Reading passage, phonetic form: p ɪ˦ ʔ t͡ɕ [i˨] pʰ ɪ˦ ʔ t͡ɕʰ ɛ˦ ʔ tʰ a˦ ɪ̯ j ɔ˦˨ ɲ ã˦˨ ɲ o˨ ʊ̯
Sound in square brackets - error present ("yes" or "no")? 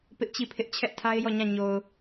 yes